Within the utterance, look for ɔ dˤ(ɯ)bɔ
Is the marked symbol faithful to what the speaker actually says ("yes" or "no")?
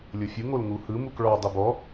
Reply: yes